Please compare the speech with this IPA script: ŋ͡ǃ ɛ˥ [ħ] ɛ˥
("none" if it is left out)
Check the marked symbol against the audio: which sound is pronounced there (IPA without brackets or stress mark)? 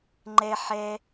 ħ